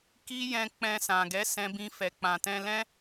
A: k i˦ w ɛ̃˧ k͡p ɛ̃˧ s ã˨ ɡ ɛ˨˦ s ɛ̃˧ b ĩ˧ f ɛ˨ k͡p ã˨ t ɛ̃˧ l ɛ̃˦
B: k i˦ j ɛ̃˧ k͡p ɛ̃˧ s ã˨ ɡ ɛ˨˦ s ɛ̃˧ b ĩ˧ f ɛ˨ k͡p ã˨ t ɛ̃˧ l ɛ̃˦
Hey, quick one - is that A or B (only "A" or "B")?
B